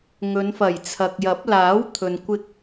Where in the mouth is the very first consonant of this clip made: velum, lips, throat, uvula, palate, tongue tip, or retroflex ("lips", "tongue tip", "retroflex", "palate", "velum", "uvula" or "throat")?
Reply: velum